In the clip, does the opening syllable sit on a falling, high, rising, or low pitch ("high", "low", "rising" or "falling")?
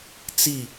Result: falling